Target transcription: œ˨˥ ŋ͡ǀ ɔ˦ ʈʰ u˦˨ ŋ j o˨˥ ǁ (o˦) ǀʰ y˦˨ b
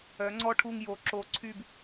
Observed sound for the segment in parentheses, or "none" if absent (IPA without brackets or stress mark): o˨˥